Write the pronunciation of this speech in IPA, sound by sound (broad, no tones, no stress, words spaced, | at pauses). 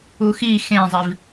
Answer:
uxi xẽzˤiv